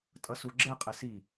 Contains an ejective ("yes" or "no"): yes